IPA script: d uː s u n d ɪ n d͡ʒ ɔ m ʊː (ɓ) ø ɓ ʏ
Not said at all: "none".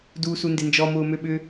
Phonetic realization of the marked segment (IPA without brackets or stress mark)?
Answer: m